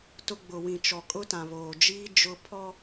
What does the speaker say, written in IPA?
t ʊ˦ ɡ͡b ʊ˨ w ĩ˨ t͡ʃ ɔ˨ kʼ ʊ˦ t ã˨ β oː˨ d͡ʒ iː˦ d͡ʒ ʊ˦ pʰ ɔ˦

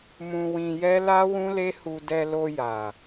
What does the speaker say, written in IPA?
m ũ˧ w ĩ˧ j ɛ˦ l a˦ w ũ˦ l e˦ h u˧ d ɛ˧ l o˧ j a˨

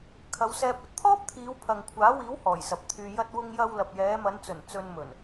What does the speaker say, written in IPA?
kʰ ɐ˨˧ w s ɛː˧ p̚ ɐ˧ t̚ t̪ʰ ɔː˥ p̚ t̪ʰ iː˨˧ w pʰ ɐ˨ ŋ kʷʰ aː˨˥ w iː˨˥ w h ɔː˨˩ j s ɐ˨ p̚ t̪ʰ yː˧ j ɐ˧ t̚ w ʊ˧ ŋ j ɐ˧ w l ɐ˨ p̚ j ɛː˨˧ m ɐ˨˧ n t͡s ɵ˨˩ n t͡s ɵ˧ n m ɵ˨˩ n

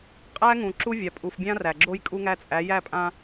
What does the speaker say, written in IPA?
qʼ æ˦ ŋ ũ˨ ǁ u˦ vʲ a˨ pʼ u˨ f bʲ ã˦ r æ˨ ɡ͡ǁ o˦ j kʼ u˦ ŋ æ˦ t͡sʼ æ˨˦ j æ˦˨ pʼ ã˦

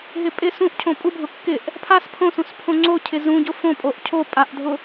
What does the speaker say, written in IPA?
ɦ ɪ pʼ ɪ s ũ ʔ cʰ õ pʼ u bʱ ʊ kː ɪ ʔ | pʰ a s pʰ õ s ũ s pʰ õ ŋ͡ǀ o cʰ ɪ z ũ ɟ ʊ f õ pʼ o ʔ cʰ o pʼ a ʔ dʱ ʊ

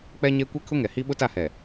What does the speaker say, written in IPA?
k͡p ɛ˦ ɲ e˦ kʷ ɛ˦ kʰ ʊ˦ ŋ ɛ˨ h i˦ ɓ ʊ˦ t a˦˨ h ɛ˨

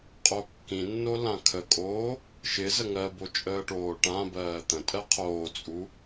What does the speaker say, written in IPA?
qʼ o kː ĩ nː o l ã kʰ ə kʼ oː | ʃ ɪ z ə ŋ ɜ b o t͡ʃʼ əː ʈ oː ʈ ã b ɜː t̪ ə̃ tʼ ɜ qʰ oː t͡sʼ u

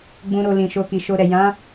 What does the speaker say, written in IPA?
ɡ͡b ũ˧ ɾ o˧ l ĩ˨ ʃ o˧ k i˨ ʃ o˧ ɾ ɛ˨ j ã˨˦

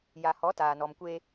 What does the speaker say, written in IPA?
j a˨ h ɔ˨˦ t aː˨ n ɔ˨ m kʷ e˦

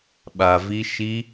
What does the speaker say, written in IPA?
ɓ a˧ v i˦ ʃ i˦

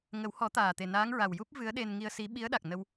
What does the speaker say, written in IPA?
ŋ ə˨˩˦ w h ɔ˨˩˦ t̪ aː˨˩ t̪ e˨˩ n aː˧˥ ŋ ɹ a˨˩ w j u˦˥ p̚ v ɨ˧˥ ə̯ ɗ e˧ n ŋ i˧ ə̯ s i˧˥ ɓ i˧˥ ə̯ ɗ a˨˩ k̚ n ə˧ w

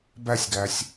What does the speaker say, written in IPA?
b æ sʲ ɡ æ sʲ

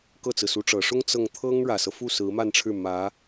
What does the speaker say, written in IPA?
k ɤ˥˩ t͡s ɹ̩˩ s u˧˥ ʈ͡ʂ ɤ˨˩ ʂ ʊ˥ ŋ t͡s ɤ˥˩ ŋ t̪ʰ ɤ˥ ŋ ɻ ä˨˩ s ɤ˦ f u˥˩ s ɹ̩˧˥ m a˥˧ n ʈ͡ʂʰ ɻ̩˥˩ m ä˧˥

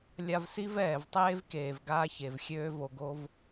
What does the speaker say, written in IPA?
lʲ a˧ v s i˦ v ɛː˨ v tˤ eː˦ v k eː˨ v ɡ aː˦ ç e˨ v xʲ øː˦ v o˧ ɡ o˧ v

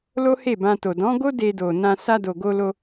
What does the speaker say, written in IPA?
l o˦ h e˦˨ b ã˧ t o˨ d ɔ̃˨˦ ɡ o˦ d e˧ d o˨ n ã˧ s a˧ d o˨ ɡ o˧ l o˧

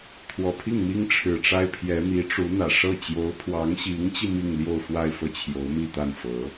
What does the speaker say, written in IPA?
t̪ʰ w ɔ˨˩ pʰ i˥˩ ŋ m i˥ ŋ ʈ͡ʂʰ ɻ̩˨˩ ʈ͡ʂ a˥ ɪ̯ pʰ j ɛ˧˥ m i˧˥ ʈ͡ʂ u˧˥ n̪ ä˨˩ ʂ ɤ˥˩ t͡ɕ j o˧˥ ʊ̯ pʰ w ɑ˧˥ ŋ ɕ i˧˥ ŋ t͡ɕ i˧ m i˥˧ ŋ l j o˥˧ ʊ̯ f w a˥˧ ɪ̯ f ɤ˥˩ t͡ɕʰ j o˧˥ ʊ̯ m i˥˧ t̪ a˥˩ n f ɤ˧˥

